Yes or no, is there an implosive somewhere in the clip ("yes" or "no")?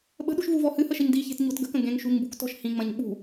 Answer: yes